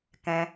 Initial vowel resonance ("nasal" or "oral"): nasal